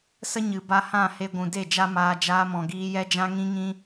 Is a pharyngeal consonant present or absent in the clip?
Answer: absent